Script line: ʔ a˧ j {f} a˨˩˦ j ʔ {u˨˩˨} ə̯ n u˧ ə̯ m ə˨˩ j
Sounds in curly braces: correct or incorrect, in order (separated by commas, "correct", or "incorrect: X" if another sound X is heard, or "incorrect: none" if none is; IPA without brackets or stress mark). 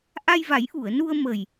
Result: incorrect: v, correct